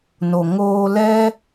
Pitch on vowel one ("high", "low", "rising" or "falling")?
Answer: low